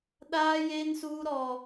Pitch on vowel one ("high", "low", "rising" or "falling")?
high